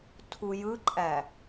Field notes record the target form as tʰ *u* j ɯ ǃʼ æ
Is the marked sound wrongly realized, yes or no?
no